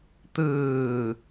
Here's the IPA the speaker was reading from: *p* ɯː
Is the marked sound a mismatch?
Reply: yes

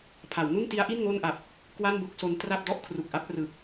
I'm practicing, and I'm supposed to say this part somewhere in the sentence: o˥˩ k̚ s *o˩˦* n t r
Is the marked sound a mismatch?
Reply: yes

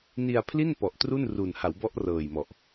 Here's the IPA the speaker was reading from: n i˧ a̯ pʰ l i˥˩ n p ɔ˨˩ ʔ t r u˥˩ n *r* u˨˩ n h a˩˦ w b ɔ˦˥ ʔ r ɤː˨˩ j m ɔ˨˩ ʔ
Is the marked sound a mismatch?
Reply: no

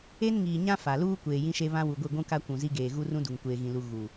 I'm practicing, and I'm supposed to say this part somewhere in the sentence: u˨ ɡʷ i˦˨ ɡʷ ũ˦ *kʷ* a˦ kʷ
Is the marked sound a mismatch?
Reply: yes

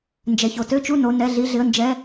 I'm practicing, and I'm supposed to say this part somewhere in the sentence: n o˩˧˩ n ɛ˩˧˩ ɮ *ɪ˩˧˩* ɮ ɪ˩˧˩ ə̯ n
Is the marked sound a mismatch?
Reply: yes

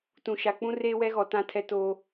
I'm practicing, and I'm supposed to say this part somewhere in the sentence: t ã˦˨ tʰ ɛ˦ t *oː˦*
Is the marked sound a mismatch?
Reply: no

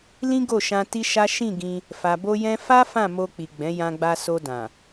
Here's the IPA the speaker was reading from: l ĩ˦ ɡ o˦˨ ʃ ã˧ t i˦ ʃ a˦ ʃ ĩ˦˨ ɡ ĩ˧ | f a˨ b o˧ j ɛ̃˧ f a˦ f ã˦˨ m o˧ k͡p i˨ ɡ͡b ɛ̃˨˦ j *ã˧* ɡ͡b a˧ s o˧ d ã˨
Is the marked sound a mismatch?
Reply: no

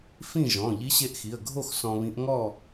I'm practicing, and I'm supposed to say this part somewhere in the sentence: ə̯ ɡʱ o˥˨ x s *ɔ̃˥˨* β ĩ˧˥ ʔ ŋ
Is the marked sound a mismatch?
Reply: yes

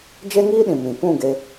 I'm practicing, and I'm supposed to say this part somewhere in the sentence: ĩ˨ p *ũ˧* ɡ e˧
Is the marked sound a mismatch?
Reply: yes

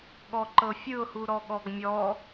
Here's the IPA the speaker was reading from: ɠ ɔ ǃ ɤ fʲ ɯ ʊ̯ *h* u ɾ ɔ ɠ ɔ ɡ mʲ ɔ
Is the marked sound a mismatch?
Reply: no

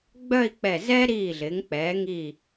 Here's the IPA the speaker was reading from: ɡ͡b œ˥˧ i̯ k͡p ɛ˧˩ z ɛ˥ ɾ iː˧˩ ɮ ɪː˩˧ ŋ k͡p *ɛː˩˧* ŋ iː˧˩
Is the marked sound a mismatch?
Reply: no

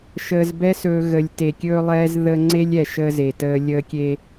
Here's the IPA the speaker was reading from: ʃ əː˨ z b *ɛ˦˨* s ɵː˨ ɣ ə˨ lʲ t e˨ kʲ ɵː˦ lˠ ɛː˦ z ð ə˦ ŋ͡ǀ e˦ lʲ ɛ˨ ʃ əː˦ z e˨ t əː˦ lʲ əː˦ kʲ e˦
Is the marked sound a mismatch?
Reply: yes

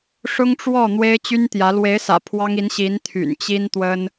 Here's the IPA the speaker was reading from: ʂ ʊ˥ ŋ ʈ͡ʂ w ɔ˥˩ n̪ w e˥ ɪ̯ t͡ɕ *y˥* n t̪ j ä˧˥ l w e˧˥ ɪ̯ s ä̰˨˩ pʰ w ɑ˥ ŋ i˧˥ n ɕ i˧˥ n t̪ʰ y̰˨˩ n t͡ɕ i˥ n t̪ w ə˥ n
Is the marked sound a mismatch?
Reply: no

